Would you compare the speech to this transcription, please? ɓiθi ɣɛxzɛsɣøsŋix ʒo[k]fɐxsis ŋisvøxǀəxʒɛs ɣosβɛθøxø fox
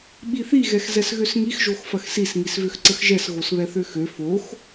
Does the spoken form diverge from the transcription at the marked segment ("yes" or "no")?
yes